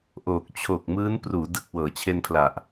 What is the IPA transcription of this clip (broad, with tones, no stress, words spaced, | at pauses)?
ʔoː˨˩k̚ t͡ɕʰo˨˩k̚mɯː˦˥n pruː˩˦ dɯ˨˩k̚ wɤː˩˦t͡ɕʰe˧npʰla˨˩ʔ